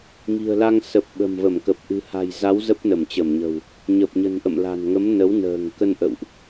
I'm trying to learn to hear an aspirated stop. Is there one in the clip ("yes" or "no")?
no